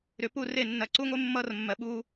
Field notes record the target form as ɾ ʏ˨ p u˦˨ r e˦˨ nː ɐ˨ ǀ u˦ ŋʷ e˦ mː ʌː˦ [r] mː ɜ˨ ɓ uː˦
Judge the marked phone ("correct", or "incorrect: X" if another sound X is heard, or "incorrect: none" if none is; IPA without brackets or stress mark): correct